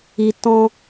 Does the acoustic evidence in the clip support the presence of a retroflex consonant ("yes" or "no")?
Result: no